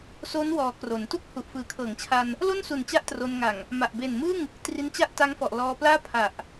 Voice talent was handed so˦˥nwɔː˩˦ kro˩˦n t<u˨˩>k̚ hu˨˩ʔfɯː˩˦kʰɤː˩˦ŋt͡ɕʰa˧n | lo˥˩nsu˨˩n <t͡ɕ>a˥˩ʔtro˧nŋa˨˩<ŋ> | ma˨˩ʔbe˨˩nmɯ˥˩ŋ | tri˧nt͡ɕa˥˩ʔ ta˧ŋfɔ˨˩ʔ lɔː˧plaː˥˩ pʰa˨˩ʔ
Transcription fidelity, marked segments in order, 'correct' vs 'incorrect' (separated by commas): incorrect, correct, correct